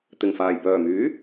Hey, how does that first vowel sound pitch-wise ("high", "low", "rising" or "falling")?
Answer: low